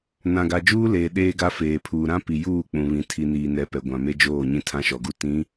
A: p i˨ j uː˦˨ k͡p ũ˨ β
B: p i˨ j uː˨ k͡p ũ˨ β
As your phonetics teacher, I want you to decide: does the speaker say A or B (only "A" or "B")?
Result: A